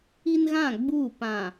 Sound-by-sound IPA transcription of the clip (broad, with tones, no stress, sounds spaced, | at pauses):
i˦ n ɣ ã˦˨ ɡ͡b uː˦˨ p ã˨